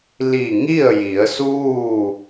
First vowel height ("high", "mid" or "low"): high